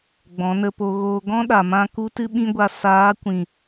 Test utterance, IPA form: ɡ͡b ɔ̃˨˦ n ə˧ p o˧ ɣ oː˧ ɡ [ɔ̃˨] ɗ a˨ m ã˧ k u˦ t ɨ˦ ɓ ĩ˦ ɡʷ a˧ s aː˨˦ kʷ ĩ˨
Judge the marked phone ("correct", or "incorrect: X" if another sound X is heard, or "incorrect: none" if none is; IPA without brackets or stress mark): incorrect: ɔ̃˦